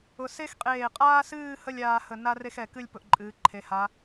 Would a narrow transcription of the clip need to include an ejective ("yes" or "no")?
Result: yes